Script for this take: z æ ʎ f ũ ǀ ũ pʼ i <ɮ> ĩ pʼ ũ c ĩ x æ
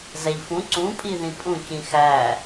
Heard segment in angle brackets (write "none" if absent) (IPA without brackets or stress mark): ð